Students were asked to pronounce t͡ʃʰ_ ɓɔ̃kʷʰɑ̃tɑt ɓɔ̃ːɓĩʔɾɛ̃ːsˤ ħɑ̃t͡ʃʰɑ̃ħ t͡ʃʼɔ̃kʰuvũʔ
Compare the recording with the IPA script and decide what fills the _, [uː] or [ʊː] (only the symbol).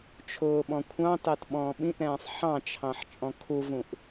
ʊː